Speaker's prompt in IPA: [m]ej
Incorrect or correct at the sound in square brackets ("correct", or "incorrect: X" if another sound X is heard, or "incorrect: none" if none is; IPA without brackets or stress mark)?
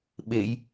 incorrect: ɓ